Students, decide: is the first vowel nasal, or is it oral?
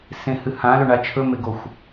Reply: nasal